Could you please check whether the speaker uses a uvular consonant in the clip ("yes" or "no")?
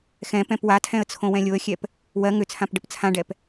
no